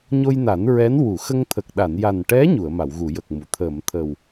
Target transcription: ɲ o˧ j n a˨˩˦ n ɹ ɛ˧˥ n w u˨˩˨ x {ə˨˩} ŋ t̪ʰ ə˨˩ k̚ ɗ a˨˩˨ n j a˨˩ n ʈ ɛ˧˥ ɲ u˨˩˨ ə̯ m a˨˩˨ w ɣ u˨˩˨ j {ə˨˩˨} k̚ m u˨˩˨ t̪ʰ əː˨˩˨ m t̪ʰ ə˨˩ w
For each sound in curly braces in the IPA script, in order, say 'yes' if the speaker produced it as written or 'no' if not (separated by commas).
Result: no, no